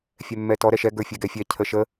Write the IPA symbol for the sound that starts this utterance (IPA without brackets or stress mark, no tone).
fʲ